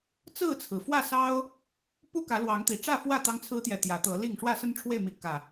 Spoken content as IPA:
t͡sɹ̩˥˨t͡sʰɹ̩˩ fwä˥˨sɑ˦ʊ̯ | pu˦ kä˨˦lwɑ˨˦ŋt̪i˨˩ ʈ͡ʂä˥˨fwä˥˨ t̪ɑ˦ŋt͡sʰɹ̩˦t̪jɛ˨ t̪jä˨˦t̪ɤ˨˦li˥˨ŋ ʂwä˥˨sə˦nʈ͡ʂʰwe˥˨ɪ̯mi˨˦ kä˨˩

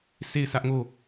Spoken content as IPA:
sʰe˦˨ɪ̯sʰä˦ʔŋo˦˨

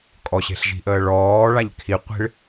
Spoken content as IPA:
kʼɔɕe̤ɬʒi̤ʔəː ɭɔːɭaʎ kʰiqʷi̤ɭ

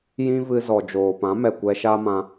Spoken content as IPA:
jĩ˦vɨ˧zɔ˨ d͡ʒoː˨pã˨˦mɛ˨ kʷɛ˧ʃa˦mã˧

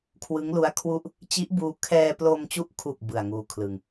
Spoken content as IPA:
kʰwɯ˦˥ŋlu˦˥a̯kʰwu˥˩ʔ | t͡ɕi˦˥ʔbuː˧ kʰɛː˧plo˧mt͡ɕu˦˥ʔkʰu˨˩k̚ bɯ˨˩a̯ŋuː˧kʰlɯ˧ŋ

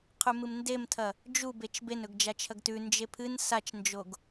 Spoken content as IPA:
qʰʉmɨmndemtʰɐ | d͡ʒubet͡ʃ benɵɡ d͡ʒat͡ʃʰɐɡtʉ nd͡ʒepʰɨn sat͡ʃnd͡ʒoɡ

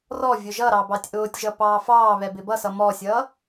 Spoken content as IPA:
rɔ vʲʊʒʌɾɑ bɑtʲʔʊːtʲʒʌ pɑːfɑːβɛ bɪbʌsʌ mɔsʲʌː

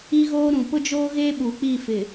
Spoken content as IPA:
i˦ɣoː˦ ɾũ˨pʊ˦d͡ʒoː˦ɣe˦ ɓu˨k͡pi˦˨fɪ˨

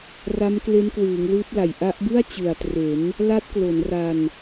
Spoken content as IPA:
ra˦˥mkle˦˥nkwɯː˩˦ŋ lɯː˦˥p̚la˨˩j ʔa˦˥ʔbɯ˥˩a̯ t͡ɕɯ˨˩a̯tre˩˦n | la˦˥t̚klo˩˦nra˧n

